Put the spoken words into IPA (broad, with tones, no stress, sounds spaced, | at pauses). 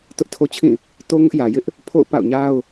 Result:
t ʊ˦ ʔ tʰ o˦ t͡ɕʰ ĩ˦˨ | t o˦ ŋ ʊ˦ ʔ j ä˨ j ɪ˦ ʔ | pʰ o̰˦˨ ʊ̯ p a̰˦˨ ʊ̯ ɲ a˦ ʊ̯